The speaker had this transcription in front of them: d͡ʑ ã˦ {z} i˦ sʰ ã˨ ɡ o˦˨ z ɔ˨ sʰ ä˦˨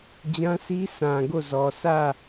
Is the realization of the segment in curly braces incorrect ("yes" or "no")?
yes